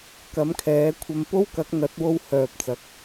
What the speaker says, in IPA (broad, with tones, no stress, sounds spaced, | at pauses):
k ɐ˨˥ m kʰ ɛː˨˥ kʷʰ ɐ˧ m p o˥ w k ɐ˨˥ k̚ n̪ ɐ˨˥ t̚ w o˧ w h œː˨ p̚ t͡s ɐ˨˥ k̚